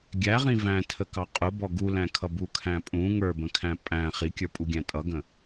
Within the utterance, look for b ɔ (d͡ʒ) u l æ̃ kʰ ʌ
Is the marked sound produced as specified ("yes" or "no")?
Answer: no